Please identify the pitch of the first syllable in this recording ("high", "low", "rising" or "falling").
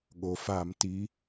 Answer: low